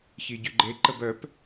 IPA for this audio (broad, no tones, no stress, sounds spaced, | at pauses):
ç i ɟ y ɡ͡ǃ e ǃ ə b œ p